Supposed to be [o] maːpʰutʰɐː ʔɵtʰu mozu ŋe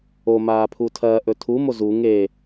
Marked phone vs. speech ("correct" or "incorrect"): correct